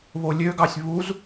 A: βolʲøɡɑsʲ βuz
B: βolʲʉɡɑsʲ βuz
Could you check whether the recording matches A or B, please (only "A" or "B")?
A